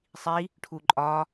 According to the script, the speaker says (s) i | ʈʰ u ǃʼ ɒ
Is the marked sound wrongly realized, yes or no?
yes